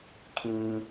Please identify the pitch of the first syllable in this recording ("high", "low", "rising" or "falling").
low